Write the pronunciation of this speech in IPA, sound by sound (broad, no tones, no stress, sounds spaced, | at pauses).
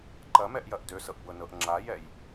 ǃ ɐ m ɛ ʔ j ɐ ʔ d ø s ɤ ʔ b ɤ n ɤ ʔ ŋ͡ǁ a j ɛ j